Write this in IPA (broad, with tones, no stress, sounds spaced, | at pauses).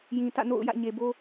j ĩ˨ t ä̰˦˨ n o̰˦˨ ʊ̯ j ä̰˦˨ ɲ e˨ b o˦